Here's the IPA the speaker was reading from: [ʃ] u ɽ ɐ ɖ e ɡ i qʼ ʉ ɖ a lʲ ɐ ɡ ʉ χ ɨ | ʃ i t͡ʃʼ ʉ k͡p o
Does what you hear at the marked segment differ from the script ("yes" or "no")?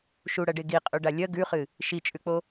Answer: no